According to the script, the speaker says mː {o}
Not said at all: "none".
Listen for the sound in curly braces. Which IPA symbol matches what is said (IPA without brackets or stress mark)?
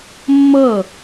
ɤ